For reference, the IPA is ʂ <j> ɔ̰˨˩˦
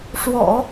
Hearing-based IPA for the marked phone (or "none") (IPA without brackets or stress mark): w